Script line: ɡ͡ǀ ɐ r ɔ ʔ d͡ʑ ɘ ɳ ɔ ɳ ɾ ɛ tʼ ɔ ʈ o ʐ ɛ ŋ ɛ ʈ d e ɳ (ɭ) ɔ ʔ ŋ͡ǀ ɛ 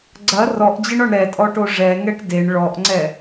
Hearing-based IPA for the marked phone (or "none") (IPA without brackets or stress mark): ɭ